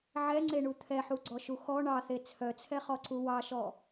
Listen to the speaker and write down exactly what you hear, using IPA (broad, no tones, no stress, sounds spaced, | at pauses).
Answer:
ʕ ɛ ŋ͡ǀ e ɳ u t̪ʰ ɛ ħ u ɡ͡ǀ ɔ ʃ u x ɔ ɳ ɑ θ e t͡sʰ œ t͡sʰ ɛ χ ɔ ǀ u w ɑ ʃ ɔ